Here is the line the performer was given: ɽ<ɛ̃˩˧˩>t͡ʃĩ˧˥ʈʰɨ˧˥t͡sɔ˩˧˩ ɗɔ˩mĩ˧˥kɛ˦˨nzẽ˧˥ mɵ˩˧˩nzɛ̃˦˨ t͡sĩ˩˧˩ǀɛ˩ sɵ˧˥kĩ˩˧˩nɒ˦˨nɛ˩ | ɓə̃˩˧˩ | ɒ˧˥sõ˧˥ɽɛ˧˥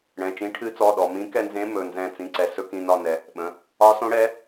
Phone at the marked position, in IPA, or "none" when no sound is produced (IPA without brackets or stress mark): ɛ̃˩˧˩